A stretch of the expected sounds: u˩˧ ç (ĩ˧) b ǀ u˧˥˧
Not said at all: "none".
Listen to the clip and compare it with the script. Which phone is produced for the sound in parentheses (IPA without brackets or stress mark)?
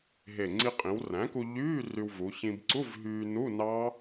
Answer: ĩ˧